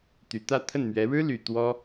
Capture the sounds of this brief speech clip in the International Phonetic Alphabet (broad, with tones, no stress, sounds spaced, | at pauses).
t̪ y˨˩ t̪ ä˥˧ t̪ʰ ə˥˩ n m ɥ ɛ˧˥ ɻ ɻ̩˥ l y˨˩ t̪ w ɔ˥